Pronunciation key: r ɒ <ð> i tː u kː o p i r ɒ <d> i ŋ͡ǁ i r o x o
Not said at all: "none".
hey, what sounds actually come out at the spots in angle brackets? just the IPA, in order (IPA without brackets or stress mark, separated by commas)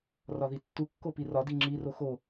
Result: ð, d